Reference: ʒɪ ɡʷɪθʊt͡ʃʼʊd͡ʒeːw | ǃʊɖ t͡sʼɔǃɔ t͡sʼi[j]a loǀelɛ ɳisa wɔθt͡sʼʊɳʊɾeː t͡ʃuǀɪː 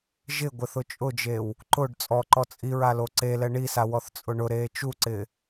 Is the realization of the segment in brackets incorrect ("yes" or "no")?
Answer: yes